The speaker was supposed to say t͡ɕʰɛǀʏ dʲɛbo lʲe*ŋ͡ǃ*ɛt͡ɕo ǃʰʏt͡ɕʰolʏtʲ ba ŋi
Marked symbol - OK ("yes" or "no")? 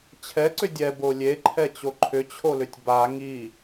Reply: no